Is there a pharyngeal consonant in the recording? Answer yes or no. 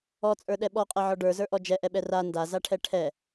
yes